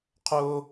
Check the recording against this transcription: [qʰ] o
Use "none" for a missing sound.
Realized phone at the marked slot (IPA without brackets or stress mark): qʰ